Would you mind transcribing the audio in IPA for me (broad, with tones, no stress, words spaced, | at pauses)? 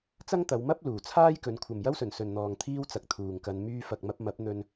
t͡sɐ˥ŋt̪ɐ˨˧wmɐ˥p̚ luː˨˩t͡sʰaː˥jkɵ˨˧n kʷʰɐ˨mjɐ˥wsɵ˨˩nsɵ˨n n̪ɔː˨ŋt̪ʰiː˥wt͡sɐ˨k̚ t̪ʰuː˨ŋkɐ˧n myː˧fɐ˨k̚mɐ˧p̚ mɐ˨˥p̚n̪ɵ˧n